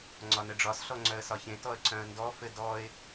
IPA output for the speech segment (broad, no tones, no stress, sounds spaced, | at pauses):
ŋ͡ǀ ɒ n ɘ ɖ͡ʐ ɒ s ɬ ɔ ŋ͡ǀ œ ə̯ s ɒ ç ẽ t ɔ ə̯ ǀ œ̃ ə̯ n d ɔ f ɘ d ɔ ɪ̯